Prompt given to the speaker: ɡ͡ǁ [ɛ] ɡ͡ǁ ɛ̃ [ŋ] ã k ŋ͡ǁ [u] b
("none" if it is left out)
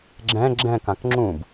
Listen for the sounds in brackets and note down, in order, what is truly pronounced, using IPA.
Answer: ɛ̃, k, ũ

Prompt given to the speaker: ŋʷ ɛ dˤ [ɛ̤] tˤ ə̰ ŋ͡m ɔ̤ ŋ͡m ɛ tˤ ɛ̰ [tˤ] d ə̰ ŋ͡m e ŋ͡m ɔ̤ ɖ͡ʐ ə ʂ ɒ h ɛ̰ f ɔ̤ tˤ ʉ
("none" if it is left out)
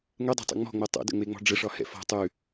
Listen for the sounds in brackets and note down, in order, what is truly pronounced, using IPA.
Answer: ɛ̤, none

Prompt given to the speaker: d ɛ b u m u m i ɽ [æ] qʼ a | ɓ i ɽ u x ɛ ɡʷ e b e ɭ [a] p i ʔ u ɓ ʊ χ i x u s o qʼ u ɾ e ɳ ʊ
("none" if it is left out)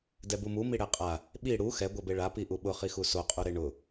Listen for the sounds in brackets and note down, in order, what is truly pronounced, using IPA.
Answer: ɛ, a

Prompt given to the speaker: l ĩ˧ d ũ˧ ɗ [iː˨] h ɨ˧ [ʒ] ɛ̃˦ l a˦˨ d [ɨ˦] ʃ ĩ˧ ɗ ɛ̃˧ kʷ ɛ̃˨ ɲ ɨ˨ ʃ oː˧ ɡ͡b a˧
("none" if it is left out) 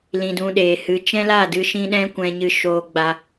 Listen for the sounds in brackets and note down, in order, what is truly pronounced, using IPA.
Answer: eː˨, t͡ʃ, ɨ˧

